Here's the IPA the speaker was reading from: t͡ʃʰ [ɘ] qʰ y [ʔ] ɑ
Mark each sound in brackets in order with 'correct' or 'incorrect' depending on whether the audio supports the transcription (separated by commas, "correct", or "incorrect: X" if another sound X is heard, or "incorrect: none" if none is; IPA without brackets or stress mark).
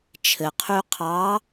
correct, incorrect: qʰ